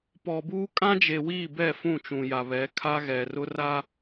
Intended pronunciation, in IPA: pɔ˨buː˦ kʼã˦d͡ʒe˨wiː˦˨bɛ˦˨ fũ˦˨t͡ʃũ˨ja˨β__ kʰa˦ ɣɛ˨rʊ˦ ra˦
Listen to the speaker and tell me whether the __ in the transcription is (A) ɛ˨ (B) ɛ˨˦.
B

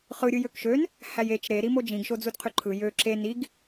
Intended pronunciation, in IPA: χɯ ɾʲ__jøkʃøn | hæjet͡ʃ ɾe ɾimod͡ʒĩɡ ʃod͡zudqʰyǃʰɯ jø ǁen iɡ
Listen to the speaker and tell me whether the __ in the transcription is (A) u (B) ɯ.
B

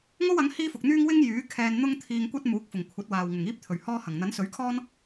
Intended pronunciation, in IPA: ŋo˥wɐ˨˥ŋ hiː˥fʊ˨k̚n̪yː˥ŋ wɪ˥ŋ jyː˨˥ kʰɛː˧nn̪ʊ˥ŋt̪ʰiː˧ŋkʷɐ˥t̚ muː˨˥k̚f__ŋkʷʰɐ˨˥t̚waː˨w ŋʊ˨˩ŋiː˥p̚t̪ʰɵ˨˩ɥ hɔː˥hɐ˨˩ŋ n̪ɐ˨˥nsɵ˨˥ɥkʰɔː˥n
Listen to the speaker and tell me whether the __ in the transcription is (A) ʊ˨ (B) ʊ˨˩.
B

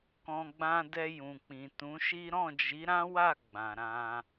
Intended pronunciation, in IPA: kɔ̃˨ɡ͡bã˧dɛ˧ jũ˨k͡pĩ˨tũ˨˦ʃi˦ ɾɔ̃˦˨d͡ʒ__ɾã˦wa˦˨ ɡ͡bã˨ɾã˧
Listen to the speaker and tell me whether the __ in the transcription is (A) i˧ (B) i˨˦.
B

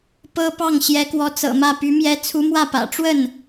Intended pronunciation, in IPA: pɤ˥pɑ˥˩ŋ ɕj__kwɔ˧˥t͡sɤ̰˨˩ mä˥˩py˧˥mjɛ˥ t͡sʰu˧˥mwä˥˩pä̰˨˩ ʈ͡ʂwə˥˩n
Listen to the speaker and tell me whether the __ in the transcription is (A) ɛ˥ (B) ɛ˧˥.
B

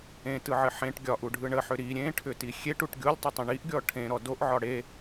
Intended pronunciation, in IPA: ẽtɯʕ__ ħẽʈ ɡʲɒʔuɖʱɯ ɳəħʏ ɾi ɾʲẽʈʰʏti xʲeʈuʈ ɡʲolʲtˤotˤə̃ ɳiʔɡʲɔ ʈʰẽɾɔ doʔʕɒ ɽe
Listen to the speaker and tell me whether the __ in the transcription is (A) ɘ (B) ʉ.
A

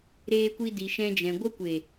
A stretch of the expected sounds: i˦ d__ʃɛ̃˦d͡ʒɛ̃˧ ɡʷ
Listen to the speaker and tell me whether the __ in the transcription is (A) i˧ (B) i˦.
A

